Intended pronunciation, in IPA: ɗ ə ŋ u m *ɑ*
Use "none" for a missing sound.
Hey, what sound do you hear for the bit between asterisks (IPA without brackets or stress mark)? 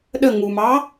ɑ